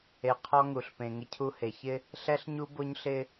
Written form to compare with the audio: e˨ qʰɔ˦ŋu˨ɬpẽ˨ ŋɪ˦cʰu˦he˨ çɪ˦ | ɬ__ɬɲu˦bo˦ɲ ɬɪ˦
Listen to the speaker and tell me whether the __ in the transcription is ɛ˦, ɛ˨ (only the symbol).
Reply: ɛ˦